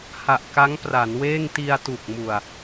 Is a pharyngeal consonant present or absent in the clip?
absent